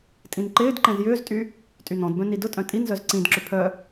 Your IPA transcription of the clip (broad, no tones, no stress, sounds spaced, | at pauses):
tʼ ĩ n ǃ ɪː d ǃ ɛ̃ z j ʏː z tʼ y | tʼ y n ɔ̃ d b œ̃ n i d ʊ tʼ œ̃ tʼ i n z œ z ǀ ĩ d ǁ ʏ pʰ œ